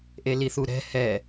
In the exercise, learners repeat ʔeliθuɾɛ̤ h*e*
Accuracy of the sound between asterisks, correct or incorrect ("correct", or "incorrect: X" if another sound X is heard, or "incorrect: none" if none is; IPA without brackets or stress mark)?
incorrect: ɛ